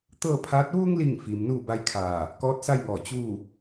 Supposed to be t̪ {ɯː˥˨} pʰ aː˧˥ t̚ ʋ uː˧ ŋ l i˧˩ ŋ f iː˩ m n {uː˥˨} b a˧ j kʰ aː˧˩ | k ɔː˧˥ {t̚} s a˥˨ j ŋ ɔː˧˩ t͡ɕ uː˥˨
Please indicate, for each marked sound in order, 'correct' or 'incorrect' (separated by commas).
incorrect, correct, correct